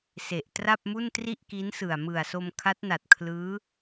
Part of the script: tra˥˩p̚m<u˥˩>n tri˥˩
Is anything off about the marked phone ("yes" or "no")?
no